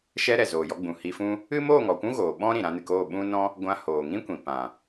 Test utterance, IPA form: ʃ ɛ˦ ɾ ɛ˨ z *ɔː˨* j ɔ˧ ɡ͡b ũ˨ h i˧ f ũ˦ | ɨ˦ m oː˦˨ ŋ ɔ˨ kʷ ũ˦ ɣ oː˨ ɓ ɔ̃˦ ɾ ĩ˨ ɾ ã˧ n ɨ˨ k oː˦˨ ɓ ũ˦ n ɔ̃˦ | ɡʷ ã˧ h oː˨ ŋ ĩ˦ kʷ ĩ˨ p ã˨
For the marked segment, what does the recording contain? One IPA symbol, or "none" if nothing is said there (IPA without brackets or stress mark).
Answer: oː˨